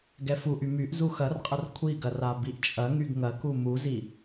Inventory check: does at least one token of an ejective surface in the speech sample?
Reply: yes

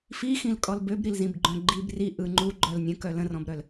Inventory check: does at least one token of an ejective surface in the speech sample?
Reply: yes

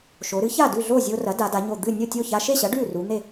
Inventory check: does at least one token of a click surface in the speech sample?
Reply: no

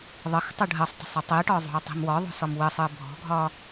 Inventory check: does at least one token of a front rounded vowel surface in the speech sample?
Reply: no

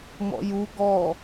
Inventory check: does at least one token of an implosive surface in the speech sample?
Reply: no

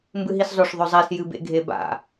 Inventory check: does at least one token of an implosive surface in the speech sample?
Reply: no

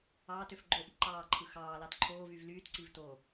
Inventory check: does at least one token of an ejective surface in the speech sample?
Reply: no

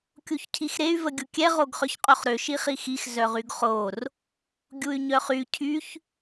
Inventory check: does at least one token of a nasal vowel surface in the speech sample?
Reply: no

